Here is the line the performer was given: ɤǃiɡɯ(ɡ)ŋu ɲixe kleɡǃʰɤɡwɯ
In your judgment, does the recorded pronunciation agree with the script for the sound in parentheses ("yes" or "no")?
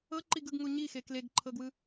yes